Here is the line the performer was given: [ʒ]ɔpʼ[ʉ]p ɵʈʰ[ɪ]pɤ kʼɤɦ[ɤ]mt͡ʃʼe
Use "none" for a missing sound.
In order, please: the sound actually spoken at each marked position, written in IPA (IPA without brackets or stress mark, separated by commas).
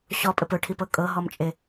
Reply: ɕ, ɘ, i, ɔ